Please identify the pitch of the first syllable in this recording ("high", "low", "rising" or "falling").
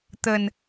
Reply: low